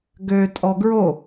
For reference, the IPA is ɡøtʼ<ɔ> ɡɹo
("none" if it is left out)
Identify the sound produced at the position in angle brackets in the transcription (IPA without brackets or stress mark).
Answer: ɔ